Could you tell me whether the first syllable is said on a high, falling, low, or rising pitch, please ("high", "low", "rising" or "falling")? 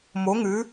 rising